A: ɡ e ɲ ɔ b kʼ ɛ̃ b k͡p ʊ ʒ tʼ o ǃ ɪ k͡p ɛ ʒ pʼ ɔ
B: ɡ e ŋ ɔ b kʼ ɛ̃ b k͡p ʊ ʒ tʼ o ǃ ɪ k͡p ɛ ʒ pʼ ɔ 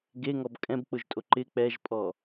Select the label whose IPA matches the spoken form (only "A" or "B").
B